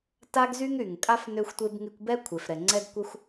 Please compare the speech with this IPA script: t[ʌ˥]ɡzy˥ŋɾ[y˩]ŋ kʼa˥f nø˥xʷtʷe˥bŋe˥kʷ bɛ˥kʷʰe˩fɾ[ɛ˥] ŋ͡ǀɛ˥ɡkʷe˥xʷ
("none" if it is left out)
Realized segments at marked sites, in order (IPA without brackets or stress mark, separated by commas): a˥, y˩, ɛ˩